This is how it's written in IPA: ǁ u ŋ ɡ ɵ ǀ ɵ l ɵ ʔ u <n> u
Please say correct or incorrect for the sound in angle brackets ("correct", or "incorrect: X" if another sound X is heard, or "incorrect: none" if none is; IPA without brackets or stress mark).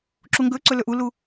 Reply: incorrect: l